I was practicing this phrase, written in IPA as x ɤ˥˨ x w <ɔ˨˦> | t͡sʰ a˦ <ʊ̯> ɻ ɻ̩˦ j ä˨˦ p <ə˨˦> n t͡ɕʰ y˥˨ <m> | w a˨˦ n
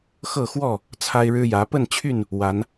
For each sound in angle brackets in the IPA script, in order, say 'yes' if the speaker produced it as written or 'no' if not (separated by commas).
no, no, no, no